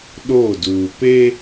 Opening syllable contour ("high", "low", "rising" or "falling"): falling